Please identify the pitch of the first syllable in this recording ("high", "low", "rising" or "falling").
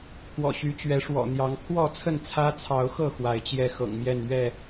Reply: low